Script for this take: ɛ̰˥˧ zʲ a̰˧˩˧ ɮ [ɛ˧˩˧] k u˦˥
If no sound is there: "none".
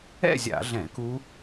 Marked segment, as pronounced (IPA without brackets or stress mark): ɛ̃˧˩˧